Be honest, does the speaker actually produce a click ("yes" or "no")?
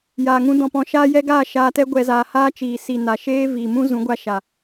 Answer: no